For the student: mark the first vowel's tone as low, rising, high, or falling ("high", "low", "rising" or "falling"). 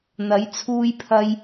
rising